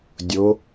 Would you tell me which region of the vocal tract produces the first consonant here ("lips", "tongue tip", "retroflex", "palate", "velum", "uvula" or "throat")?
tongue tip